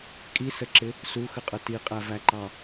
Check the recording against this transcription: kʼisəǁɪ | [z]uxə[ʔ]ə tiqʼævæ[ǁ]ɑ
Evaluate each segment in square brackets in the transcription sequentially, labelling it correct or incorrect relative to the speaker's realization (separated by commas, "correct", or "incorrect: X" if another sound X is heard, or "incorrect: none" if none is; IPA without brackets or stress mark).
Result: incorrect: s, incorrect: qʼ, incorrect: ǃ